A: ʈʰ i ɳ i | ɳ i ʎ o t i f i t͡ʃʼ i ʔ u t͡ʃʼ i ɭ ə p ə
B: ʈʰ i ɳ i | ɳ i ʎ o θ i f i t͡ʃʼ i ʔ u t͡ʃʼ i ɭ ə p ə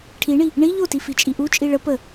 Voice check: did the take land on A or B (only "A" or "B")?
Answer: A